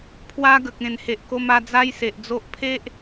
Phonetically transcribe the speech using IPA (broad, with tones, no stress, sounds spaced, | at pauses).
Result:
pʰ w a˦ ɡ ə˨ k̚ ẽ˨˩ n h e˨ ʔ k o˧ m a˧ d͡z a˦ j s e˨ ʔ d͡z o˦ ʔ pʰ e˦ ʔ